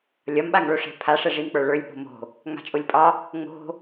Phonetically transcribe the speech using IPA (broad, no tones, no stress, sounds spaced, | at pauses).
lʲ ɒ m ɓ a ŋ ɭ o ʂ ɛ̤ pʰ a ʂ ɛ ʐ i m k͡p ə˞ ɭ ə˞ lʲ ɓ o̤ m o̤ | ŋ͡m a̤ t͡ʃʼ o lʲ pʼ ɒ | ŋ͡m o̤